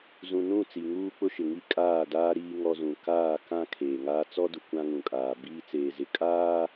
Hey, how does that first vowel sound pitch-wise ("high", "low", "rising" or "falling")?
low